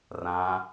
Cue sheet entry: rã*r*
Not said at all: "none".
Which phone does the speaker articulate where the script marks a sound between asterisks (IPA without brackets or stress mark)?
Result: none